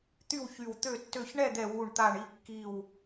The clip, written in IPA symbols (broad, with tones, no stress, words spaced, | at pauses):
t̪y˥˨wçy˧˩wt̪ø˥˨tːø˥˨ç ɳɛ˥˨d̪ɛ˧˩ wu˧˩ɳ t̪a˧˩ɳi˧˩ kːi˧˩w